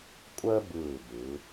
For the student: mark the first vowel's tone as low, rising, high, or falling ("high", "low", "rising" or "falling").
high